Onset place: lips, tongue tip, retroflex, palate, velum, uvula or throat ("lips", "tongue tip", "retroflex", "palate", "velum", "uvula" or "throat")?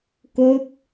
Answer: velum